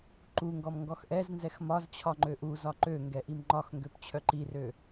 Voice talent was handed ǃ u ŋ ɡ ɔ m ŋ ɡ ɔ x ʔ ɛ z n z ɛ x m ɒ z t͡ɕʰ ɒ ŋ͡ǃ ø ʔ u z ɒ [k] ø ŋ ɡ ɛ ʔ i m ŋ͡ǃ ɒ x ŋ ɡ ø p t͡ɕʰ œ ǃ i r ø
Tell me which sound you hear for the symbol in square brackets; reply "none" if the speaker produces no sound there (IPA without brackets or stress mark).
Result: ǃ